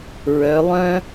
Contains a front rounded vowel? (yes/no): yes